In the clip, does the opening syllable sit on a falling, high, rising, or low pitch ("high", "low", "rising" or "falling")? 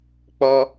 high